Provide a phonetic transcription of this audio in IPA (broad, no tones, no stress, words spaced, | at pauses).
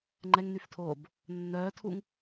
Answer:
ŋ͡ǃɛŋnyftʰoːb | nːœːtʰuŋ